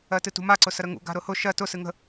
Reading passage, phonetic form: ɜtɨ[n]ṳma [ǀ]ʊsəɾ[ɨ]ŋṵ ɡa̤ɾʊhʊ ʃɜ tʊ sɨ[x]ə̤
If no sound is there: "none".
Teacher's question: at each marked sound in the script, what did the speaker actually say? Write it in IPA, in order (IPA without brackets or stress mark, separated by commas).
t, ǀ, ə, ŋ